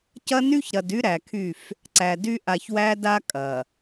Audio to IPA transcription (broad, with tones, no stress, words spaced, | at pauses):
cɐ˦ny˦çɾɐ˨dy˦ ɾæ˨kʰy˦˨f | ǀæ˨dy˦ ʔa˨çwæ˦da˦ kʼɐ˨